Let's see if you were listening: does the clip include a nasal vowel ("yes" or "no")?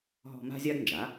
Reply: no